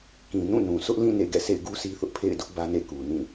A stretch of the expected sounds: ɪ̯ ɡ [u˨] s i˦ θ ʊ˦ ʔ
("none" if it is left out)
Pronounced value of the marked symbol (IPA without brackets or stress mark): u˦